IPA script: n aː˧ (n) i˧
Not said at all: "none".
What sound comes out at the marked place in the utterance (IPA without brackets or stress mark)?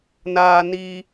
n